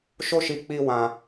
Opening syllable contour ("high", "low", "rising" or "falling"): high